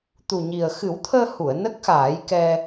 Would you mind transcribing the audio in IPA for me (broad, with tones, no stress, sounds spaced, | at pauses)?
t̪ u˨˩ ɲ i˨˩ ə̯ x ɨ˨˩˦ w t̪ʰ əː˧ h u˨˩˨ ə̯ n ə˦˥ k̚ x aː˨˩˦ j k ɛ˧